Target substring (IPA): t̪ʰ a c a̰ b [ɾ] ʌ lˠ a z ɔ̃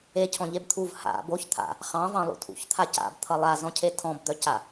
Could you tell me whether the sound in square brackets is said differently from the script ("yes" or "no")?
yes